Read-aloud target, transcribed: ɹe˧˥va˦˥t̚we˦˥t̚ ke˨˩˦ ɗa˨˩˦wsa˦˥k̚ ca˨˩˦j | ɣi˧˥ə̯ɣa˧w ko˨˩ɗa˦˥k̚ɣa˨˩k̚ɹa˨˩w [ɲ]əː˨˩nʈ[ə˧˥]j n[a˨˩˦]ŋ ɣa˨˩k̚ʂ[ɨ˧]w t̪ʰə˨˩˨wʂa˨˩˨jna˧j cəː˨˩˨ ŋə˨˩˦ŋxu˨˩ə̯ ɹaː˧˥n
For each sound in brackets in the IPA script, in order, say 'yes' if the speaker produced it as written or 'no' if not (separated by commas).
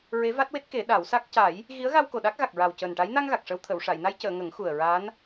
no, no, no, no